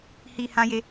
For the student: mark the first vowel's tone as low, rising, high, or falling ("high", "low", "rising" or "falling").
low